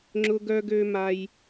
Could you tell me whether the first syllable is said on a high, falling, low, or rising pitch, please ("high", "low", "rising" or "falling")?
high